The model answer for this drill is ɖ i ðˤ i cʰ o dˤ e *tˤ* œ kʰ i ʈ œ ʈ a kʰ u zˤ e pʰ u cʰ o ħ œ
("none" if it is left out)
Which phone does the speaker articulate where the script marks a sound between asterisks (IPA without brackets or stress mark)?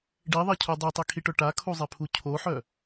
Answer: tˤ